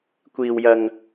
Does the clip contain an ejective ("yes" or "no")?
no